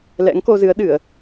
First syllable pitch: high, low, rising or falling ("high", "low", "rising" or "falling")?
rising